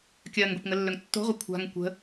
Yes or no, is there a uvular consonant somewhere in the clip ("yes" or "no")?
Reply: yes